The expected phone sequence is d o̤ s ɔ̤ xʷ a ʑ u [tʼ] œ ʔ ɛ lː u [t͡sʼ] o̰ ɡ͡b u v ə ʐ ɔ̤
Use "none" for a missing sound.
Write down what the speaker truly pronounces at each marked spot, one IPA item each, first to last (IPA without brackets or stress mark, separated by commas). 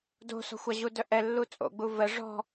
d, t͡sʼ